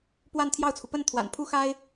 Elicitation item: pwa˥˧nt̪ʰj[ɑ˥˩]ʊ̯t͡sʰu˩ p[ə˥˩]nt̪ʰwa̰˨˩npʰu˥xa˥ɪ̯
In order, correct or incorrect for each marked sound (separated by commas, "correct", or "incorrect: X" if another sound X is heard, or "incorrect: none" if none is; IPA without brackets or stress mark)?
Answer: correct, correct